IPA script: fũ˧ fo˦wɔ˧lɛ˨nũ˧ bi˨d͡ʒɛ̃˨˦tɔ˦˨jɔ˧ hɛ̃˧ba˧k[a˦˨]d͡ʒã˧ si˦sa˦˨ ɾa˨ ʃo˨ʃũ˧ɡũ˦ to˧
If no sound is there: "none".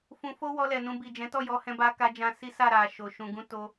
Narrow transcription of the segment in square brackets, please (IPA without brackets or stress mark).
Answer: a˧